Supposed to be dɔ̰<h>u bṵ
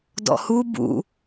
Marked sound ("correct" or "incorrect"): correct